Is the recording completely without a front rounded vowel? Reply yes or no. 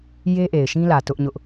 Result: yes